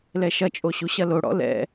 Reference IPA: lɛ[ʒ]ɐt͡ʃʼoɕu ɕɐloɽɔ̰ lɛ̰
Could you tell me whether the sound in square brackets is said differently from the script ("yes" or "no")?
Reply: yes